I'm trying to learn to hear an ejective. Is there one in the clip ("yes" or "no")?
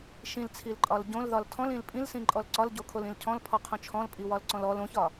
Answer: yes